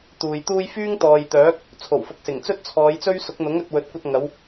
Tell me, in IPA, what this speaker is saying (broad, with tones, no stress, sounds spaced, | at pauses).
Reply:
t̪ uː˨ j t̪ uː˥ j f yː˥ ŋ t̪ ɔː˨ j t̪ œː˨˥ k̚ | t͡sʰ o˨˩ w f ʊ˨ k̚ s ɪ˨˩ ŋ t͡s ɵ˥ t̚ t͡sʰ ɔː˨˧ j t͡s ɵ˥ ɥ s ʊ˨˥ k̚ n̪ ʊ˨˥ ŋ ɵ˨ t̚ w ɵ˨˥ t̚ kʷ ɐ˧ t̚ ŋ ɐ˨˧ w